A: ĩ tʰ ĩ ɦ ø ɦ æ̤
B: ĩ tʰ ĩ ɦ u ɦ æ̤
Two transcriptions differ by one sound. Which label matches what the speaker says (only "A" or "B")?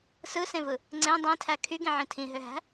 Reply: A